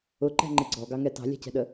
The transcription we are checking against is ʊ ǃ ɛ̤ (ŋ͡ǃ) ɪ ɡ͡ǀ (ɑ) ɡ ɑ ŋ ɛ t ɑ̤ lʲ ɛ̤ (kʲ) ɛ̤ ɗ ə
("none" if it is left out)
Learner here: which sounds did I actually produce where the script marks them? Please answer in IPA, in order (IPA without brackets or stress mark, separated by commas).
ŋ͡ǃ, ɔ, c